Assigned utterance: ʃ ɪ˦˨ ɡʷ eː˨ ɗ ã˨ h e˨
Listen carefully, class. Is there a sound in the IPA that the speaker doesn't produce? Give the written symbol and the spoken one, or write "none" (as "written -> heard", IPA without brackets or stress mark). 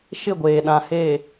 none